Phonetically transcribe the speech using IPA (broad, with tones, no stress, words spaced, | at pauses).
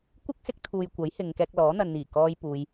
kʷɪ˥k̚sɪ˧k̚t̪ʰuː˨j kʷɐ˨˥jhɪ˨ŋ kɛː˧k̚lɔː˨˥ n̪ɐ˨nn̪iː˨˩kɔː˧j puː˧j